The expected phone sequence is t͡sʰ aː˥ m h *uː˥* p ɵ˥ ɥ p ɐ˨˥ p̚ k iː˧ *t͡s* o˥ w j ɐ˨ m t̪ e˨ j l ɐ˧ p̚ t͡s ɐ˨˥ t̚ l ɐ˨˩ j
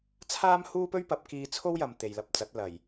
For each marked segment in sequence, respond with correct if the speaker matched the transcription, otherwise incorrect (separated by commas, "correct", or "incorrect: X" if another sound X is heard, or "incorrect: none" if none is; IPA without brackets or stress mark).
correct, incorrect: t͡sʰ